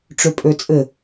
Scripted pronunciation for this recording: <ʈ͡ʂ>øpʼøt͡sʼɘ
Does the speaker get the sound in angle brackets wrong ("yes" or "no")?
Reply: no